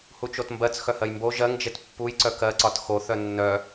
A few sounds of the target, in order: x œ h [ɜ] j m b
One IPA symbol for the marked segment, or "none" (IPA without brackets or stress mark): ɜ